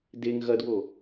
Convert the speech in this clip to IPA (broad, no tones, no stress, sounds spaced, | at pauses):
d e ŋ ɣ ɐ d w o